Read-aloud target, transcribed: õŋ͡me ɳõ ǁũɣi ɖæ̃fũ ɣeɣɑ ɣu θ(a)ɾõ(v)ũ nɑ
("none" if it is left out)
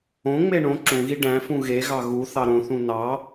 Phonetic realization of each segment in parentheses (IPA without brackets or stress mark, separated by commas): ɑ, θ